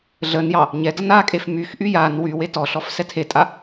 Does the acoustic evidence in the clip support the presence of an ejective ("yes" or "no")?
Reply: yes